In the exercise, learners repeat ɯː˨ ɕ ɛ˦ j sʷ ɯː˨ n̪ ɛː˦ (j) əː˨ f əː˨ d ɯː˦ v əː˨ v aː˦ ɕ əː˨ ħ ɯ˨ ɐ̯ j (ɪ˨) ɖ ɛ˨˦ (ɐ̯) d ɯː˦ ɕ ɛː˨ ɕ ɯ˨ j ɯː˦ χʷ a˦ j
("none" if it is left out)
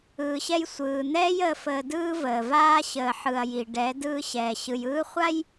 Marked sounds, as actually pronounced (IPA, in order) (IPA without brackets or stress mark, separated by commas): j, i˨, none